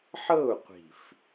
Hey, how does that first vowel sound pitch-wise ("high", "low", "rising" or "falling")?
falling